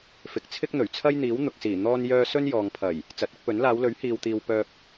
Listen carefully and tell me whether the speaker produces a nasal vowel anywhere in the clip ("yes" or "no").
no